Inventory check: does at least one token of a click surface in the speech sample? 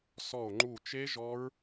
yes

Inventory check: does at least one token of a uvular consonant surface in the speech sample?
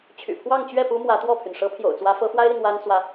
no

